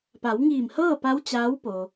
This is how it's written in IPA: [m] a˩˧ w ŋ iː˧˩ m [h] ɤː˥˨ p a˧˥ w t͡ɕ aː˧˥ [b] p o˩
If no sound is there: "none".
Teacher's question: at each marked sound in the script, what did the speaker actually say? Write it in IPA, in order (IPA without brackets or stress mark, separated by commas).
p, h, w